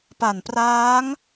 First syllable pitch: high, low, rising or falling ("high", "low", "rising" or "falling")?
low